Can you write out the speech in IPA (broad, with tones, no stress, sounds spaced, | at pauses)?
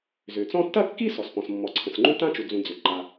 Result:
z ʏ˩ t͡s ɔ̃˥ tː ɐ˥ kː i˥ s ɔ˩ s p ɔ̃˩ s mː ɔ˩ ǀʰ ə̃˩ s ŋ͡ǃ ũ˥ t ã˥ t͡ʃ u˩ d͡z ũ˩ d͡z ʏ˩ ǃ a˩